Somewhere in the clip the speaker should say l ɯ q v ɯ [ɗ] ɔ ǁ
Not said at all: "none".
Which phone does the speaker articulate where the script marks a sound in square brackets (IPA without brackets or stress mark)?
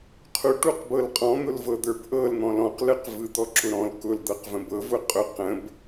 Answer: d̪